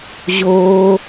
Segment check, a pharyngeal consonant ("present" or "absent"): absent